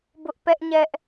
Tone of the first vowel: high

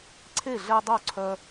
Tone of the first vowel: falling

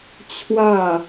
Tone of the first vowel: falling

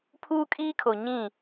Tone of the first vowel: high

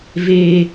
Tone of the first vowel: low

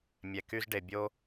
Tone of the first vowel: low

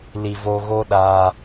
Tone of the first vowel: low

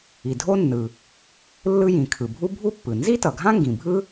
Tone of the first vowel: low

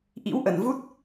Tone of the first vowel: rising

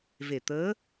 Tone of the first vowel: low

